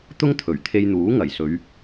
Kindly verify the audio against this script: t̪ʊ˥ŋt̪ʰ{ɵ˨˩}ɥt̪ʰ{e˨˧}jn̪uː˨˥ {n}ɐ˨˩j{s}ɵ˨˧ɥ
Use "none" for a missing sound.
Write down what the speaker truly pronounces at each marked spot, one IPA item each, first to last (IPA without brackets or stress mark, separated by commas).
ɵ˨˩, e˧, ŋ, s